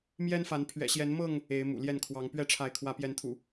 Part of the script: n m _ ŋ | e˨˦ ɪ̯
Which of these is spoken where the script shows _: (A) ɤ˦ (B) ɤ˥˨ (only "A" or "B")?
B